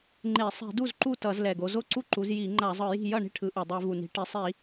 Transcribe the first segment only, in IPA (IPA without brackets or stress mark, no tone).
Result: ŋ͡ǃ